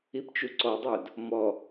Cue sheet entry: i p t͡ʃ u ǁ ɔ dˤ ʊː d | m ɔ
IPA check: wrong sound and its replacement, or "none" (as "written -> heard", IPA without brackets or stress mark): ǁ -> ǀ